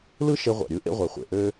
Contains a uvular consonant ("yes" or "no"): yes